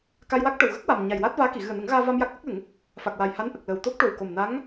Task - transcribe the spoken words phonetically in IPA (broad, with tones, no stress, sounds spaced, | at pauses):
k a˧ j w a˦˥ k̚ ʈ ə˨˩ w ɣ ə˦˥ k̚ w a˨˩ m ɲ a˨˩ j w aː˦˥ t̚ v aː˧˥ k i˨˩˨ ɣ ɨ˨˩ ə̯ n ə˨˩˦ ŋ ɣ aː˧ v a˧ m j a˦˥ k̚ ʔ ə˦˥ k̚ l ə˨˩˦ ŋ | f a˨˩ k̚ w a˨˩ j h a˧˥ n ʔ ə˨˩ k̚ l ə˨˩ w t̪ o˦˥ k̚ ʈ o˨˩ w k o˨˩ m n a˧˥ ŋ